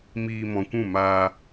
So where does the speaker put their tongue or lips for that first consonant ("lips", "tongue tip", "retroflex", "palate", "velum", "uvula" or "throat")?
lips